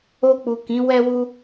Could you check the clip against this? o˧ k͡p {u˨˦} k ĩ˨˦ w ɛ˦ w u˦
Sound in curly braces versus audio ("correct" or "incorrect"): incorrect